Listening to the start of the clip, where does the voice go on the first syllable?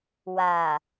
low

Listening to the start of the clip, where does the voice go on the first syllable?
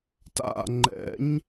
falling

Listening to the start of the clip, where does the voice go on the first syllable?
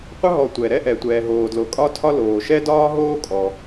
high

